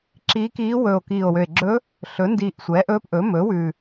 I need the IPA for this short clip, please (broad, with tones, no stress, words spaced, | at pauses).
ǁiː˧˥kiː˧˥ wɵː˨˩o̯kiː˨˩o̯wø˨˩e̯ ɡ͡ǁɵ˧˥ | ɬɵ˩˥ndiː˨˩ʔ sʷɛ˩˥ʔɵː˧˥pʔɵ˩˥ mɵː˩˥wʉ˨˩